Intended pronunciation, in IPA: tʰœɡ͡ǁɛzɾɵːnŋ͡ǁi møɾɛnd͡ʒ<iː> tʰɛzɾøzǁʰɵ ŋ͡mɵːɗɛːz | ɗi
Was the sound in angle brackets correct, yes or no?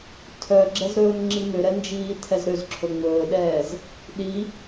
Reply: yes